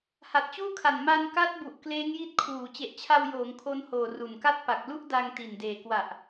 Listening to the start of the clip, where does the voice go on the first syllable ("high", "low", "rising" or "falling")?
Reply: low